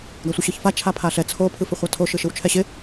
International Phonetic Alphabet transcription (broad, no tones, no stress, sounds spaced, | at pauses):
ɡ a sʷ ə ɕ ɯ ç f a t͡ʃʰ a pʰ a ɬ ɛ t͡sʰ o pʰ ɯ f ɪ χʷ a tʰ o ʃ ɯ ʃ ɯ w t͡ʃʰ ɛ ɕ ɪ